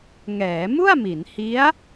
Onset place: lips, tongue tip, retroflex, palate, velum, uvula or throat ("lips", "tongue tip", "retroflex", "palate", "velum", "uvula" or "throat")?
velum